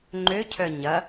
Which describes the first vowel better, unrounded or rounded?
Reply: rounded